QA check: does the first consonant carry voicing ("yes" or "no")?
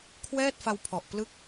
no